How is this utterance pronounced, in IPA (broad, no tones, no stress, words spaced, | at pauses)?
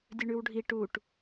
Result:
dʲɵɳʉwɖʱi ʈuʈ